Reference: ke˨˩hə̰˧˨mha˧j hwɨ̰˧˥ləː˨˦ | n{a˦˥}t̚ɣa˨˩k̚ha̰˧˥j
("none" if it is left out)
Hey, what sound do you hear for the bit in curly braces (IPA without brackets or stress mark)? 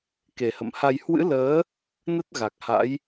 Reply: ə˦˥